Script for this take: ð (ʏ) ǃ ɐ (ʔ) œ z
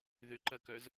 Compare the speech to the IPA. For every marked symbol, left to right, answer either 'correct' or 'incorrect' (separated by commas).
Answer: correct, incorrect